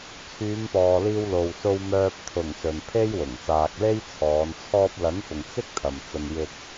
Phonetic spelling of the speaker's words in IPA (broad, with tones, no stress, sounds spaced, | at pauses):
t͡sʰ yː˨˧ m p ɔː˨ l iː˧ w l o˨ w s o˧ w m œː˧ p̚ t̪ʰ ʊ˨˩ ŋ s ɵ˨ n pʰ e˥ j w ʊ˨˩ ŋ s aː˨ k̚ l e˥ j t͡sʰ ɔː˨˧ n t͡sʰ ɔː˧ p̚ l ɐ˨˥ n f ʊ˨ ŋ t͡s ɪ˥ k̚ t̪ʰ ɐ˨ m t͡s ɐ˧ n j ɪ˧ k̚